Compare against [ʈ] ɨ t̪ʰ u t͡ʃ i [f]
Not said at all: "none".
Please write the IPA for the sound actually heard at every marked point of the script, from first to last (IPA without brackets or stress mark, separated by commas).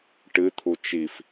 ʈ, f